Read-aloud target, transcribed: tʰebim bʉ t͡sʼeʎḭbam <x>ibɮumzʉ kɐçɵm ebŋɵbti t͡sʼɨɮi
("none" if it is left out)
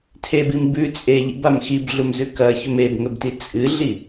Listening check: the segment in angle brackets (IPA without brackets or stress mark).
x